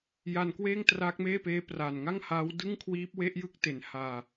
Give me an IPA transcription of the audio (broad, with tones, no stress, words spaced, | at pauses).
ja˧n kweː˥˩ŋtraː˦˥k̚meː˥˩peː˦˥ praː˨˩nŋa˥˩ŋhaː˦˥w dɯ˥˩ŋkʰwiː˦˥p̚ we˦˥ʔjɯ˦˥k̚te˨˩n haː˧